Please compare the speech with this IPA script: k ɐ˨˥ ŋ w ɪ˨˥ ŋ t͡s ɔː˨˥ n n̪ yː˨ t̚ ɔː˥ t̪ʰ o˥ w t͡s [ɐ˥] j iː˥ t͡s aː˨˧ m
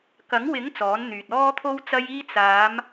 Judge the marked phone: correct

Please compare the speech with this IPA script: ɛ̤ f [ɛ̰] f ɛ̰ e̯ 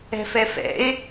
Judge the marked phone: incorrect: ɛ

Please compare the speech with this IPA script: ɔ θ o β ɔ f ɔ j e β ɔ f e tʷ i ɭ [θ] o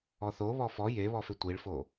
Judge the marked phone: incorrect: f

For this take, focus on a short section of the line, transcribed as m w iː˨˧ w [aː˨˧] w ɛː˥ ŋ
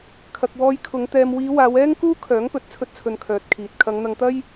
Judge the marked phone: correct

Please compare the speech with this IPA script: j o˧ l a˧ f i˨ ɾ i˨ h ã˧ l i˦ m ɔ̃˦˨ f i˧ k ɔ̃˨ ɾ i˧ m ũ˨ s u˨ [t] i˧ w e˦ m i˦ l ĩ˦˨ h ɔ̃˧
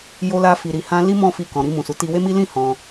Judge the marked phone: correct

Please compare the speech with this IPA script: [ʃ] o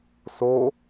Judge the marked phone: incorrect: s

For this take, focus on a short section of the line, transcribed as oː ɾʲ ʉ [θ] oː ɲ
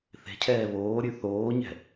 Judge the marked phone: correct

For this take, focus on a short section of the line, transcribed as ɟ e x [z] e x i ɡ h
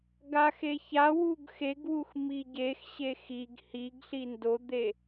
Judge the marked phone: incorrect: ɕ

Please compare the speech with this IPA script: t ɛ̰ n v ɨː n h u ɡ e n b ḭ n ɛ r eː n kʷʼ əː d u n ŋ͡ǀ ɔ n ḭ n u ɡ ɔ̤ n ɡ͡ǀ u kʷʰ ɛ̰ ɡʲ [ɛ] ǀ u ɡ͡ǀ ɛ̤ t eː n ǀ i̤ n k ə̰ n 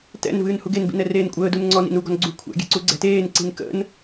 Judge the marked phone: incorrect: ɛ̤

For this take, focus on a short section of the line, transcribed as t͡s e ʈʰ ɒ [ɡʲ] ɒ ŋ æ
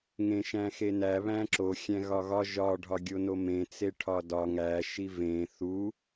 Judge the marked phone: incorrect: d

